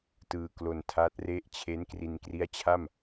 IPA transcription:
t ɯː˧ k l o˧ n tʰ a˦˥ t̚ r e˥˩ ʔ t͡ɕʰ e˦˥ n k r i˧ n k r i˦˥ a̯ t͡ɕʰ a˥˩ m

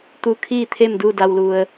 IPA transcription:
t̪ u˧˥ kʰ iː˥˨ t̪ʰ e˥˨ m d u˥˨ d a˧ w l u˧ ə̯

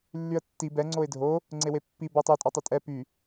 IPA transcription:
lː y ə̯ tː i b ɛ ŋ͡ǀ o ɪ̯ dʱ o | ŋ͡ǀ e w e pː i b ɔ tˤ o tʼ ɔ tˤ e tʼ ɛ p y

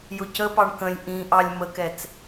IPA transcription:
j ʊ c ə p ɑ ɳ k ə̃ lʲ ʔ ĩ ʔ ɑ lʲ m ə k ɛ t͡s

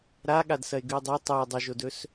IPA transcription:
ɾ a ɠ a d s ɐ e̯ ɡ ʉ o̯ dˤ o tˤ u o̯ dˤ ʉ ʒ o d ɵ s

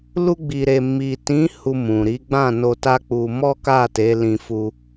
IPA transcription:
l u˧ ɡ͡b i˨ ɾ e˨ m i˨ t ĩ˨˦ h u˧ m ũ˨ ɾ i˨˦ ɡ͡b ã˦˨ n o˧ t a˦ k͡p u˧ m ɔ˦ k a˦˨ t e˨˦ l ĩ˧ f u˧

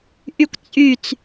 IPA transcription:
ʔ y kʷ t͡sʼ y t͡s

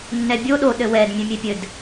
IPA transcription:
nː ɛ bʲ o ɗ o ɗ ɘ w ɛ d mʲ ɛ̃ mʲ e pʲ ɘ d

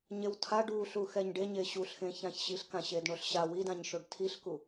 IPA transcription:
ɲ e w tʰ a ɖ u ɬ u x ɛ ɲ ɖ e ɲ e ɕ u ɬ x ẽ ç ã ç ɕ i ɬ k ã ɕ e d ɳ o ɬ ɕ a w i d ã ɲ ʃ o ɖ tʰ i ɬ k u

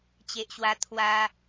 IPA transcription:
t͡ɕ e˨ ʔ ɕ w a˧ t̪ʰ w a˧

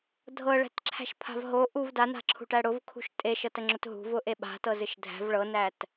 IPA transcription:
dʱ ɤ ɭ æ̤ t ǁʰ æ̤ ʃ pʰ a̤ v ɦ o ʔ u v d a n a̤ ǁʰ ṳ ʈ æ ɽ ʊ v kʰ ṳ ʃ tʼ e ʃ ɤ t ə ŋ͡ǁ ʊ t ɦ ṳ v ʊ ʔ e ɓ a̤ t ɤ z ɨ ʃ dʱ æ̤ v ɭ ɤ n æ t

